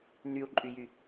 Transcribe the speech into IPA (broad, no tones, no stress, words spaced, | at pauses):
n̪yu̯ǃʼyjy